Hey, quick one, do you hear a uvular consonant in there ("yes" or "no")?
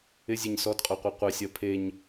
yes